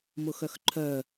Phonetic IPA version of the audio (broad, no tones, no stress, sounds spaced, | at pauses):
m ʊ x œ x ǃʰ œ